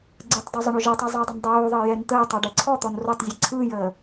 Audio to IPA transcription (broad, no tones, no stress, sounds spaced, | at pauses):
ɡ͡ǀ ɯ tˤ d o zˤ ə ɳ o ʒ əː tˤ ɯ zˤ əː dˤ ə n dˤ oː ðˤ əː j ɛ n t̪ əː tˤ ɔ ɖ ɛ ǀʰ ɔ t̪ ɔ n r o tˤ zʲ ɛ ǀʰ ɯː j əː